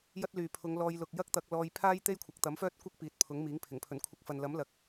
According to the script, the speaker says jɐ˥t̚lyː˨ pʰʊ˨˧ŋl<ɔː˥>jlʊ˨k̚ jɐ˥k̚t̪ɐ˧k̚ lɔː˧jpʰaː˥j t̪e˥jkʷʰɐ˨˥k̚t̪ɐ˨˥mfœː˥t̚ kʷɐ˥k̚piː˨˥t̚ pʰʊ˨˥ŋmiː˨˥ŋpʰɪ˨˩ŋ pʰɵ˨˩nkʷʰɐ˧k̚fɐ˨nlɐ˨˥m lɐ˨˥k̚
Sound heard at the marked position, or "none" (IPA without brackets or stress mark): ɔː˧